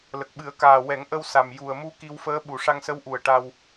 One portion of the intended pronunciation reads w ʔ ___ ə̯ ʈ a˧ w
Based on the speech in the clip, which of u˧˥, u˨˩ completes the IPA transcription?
u˨˩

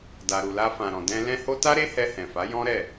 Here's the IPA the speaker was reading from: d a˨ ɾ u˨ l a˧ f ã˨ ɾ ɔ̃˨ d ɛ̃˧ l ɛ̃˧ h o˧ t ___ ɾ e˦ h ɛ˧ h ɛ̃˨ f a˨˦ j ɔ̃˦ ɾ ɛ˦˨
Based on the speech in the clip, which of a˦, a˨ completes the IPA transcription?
a˦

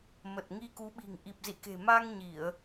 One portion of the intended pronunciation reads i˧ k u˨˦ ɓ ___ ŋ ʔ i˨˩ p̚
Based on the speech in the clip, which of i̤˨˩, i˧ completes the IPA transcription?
i̤˨˩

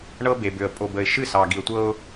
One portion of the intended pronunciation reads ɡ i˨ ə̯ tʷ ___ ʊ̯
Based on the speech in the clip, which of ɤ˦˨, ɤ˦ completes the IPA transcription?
ɤ˦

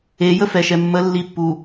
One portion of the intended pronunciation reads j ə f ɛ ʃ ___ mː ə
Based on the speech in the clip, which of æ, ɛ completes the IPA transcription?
ɛ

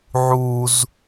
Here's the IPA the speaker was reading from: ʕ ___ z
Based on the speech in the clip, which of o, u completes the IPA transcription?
u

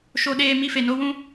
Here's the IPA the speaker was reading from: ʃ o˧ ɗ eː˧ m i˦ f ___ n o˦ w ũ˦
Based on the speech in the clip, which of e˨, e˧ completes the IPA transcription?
e˧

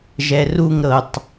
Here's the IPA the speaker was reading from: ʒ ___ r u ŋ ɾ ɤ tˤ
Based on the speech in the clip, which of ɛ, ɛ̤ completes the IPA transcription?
ɛ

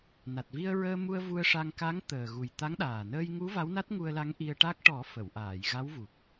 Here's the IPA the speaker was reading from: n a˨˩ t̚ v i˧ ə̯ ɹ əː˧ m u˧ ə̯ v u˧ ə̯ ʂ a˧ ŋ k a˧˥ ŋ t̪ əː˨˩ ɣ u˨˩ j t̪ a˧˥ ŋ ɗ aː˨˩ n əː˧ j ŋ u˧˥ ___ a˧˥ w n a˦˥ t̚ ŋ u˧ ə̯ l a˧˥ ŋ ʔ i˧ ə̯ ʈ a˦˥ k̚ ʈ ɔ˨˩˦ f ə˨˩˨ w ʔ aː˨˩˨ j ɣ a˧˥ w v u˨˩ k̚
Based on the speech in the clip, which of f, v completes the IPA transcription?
v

